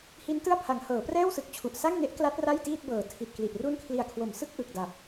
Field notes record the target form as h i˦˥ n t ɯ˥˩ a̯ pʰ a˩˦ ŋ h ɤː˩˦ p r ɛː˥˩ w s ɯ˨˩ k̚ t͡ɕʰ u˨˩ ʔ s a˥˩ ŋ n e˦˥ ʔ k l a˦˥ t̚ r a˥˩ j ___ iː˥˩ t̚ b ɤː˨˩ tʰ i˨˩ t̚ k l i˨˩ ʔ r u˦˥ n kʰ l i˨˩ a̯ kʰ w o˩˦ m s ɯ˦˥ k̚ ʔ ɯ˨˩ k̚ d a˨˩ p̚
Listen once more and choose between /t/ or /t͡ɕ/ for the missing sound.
t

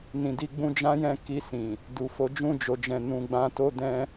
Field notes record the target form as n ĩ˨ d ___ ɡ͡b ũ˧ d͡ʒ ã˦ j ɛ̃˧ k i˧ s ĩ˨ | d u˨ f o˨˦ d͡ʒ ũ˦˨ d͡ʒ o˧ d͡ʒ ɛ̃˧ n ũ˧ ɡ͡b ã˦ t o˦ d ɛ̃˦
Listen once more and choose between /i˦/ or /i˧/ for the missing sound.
i˧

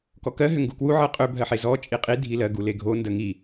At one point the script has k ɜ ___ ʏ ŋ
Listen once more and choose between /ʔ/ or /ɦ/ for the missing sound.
ɦ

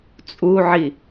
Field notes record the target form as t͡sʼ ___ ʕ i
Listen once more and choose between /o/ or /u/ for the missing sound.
u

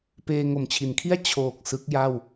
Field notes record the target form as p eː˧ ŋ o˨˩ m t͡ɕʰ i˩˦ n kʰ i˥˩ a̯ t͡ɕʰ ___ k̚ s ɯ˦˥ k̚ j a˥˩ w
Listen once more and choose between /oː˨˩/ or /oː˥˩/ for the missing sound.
oː˨˩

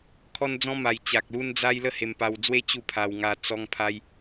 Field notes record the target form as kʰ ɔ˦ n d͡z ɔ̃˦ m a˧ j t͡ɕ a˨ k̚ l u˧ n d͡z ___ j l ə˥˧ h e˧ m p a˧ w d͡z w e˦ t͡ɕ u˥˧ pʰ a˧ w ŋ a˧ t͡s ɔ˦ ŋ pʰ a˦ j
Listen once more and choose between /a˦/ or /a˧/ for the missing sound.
a˧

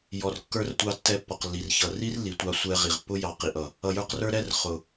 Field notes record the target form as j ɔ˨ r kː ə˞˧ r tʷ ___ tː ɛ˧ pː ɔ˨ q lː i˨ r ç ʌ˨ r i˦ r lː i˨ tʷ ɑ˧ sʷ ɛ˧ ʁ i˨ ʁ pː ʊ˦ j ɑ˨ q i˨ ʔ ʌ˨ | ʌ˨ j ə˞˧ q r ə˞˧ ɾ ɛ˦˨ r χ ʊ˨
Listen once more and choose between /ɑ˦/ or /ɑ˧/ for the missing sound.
ɑ˧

